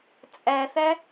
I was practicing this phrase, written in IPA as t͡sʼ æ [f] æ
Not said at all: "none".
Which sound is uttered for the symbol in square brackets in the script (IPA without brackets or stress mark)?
θ